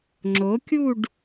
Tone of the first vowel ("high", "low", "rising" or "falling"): rising